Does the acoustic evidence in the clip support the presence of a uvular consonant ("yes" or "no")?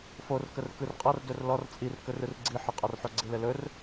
yes